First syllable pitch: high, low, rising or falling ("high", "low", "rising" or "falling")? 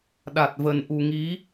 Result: low